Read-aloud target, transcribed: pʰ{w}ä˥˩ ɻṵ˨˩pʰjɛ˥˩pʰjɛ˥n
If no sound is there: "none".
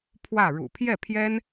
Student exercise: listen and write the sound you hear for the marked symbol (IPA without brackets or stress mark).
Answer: w